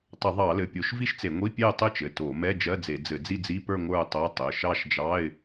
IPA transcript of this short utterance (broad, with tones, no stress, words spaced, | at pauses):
tˤɘ˧˩˧ðˤɑ˧˩˧ lɘ˩˧˩pʲo˧˩˧ʃ vi˥˧ʃt͡se˧˩˧ŋʷi˧˥˧ pʲe˥˧ə̯tˤɘ˥˧t͡ʃɘ˩˧˩ to˧˩˧mɛ˧˥˧ d͡ʒɜ˧˥˧d͡ze˧˩˧ d͡zɘ˧˩˧d͡zi˥˧d͡zi˧˥˧pə˞˥˧ ŋʷə˞˥˧ʊ̯tˤo˧˥˧ tˤɘ˩˧˩ ʃɑ˥˧ʃd͡ʒɑ˧˥˧ɪ̯